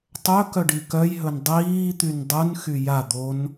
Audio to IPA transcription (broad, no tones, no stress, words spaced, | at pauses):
tˤɵkœ ɖikœjɦɵn dˤiːt̪yn dˤɯn xyja d̪on